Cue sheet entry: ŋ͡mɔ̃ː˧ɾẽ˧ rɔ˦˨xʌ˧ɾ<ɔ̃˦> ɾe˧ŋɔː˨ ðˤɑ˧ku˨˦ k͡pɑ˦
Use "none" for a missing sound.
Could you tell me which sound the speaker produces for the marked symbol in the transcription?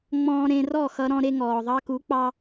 ɔ̃˧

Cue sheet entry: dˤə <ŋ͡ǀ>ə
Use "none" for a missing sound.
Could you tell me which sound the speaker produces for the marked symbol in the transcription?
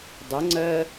ŋ͡ǀ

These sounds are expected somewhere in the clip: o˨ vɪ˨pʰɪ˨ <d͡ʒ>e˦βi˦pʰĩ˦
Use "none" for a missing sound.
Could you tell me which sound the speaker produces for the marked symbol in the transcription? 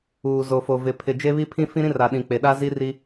d͡ʒ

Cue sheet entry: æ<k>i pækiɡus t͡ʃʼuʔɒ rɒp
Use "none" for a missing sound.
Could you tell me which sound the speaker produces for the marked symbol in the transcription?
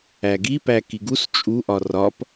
ɡ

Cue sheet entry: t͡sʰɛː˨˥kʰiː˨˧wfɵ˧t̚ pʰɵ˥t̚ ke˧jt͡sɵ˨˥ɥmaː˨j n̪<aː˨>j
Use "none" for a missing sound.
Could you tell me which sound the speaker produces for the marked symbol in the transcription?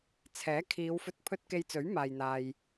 aː˨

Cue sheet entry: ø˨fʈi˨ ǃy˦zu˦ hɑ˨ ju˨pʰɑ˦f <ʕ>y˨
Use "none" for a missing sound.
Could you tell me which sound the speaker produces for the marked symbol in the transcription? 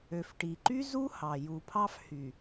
h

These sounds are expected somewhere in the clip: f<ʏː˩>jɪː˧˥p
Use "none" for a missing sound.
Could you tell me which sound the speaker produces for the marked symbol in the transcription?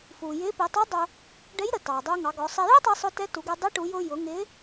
uː˩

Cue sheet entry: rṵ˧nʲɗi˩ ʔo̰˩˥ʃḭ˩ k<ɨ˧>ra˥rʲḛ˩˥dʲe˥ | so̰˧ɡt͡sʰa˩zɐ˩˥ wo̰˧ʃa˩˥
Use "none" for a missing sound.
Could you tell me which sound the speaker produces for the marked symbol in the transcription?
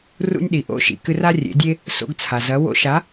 ɨ˧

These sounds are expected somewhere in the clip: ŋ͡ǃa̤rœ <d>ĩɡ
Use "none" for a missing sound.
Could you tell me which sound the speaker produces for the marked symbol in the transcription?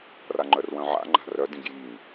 d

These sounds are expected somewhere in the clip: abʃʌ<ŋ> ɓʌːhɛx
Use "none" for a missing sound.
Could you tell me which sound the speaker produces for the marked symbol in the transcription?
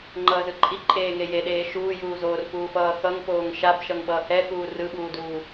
ŋ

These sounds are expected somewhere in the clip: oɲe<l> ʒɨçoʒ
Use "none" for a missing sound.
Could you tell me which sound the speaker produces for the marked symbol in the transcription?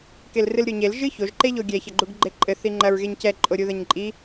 l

